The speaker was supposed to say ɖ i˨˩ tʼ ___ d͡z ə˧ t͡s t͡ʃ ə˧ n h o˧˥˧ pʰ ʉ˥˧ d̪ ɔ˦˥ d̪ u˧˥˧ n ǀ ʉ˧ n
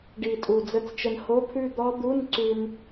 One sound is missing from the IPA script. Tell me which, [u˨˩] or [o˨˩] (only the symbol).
u˨˩